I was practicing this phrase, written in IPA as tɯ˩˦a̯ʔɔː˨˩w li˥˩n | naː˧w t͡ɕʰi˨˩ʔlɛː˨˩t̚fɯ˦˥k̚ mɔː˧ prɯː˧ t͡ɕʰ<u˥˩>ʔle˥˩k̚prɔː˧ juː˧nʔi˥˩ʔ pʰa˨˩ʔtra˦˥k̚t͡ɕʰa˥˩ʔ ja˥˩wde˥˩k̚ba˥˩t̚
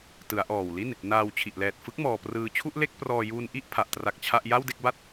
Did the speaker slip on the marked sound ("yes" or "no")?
no